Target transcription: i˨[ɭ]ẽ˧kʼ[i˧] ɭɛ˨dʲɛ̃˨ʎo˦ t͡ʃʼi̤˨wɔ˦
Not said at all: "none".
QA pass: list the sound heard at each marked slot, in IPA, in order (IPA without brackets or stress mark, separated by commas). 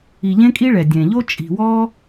ʎ, i˧